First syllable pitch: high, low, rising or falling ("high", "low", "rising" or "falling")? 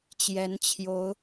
rising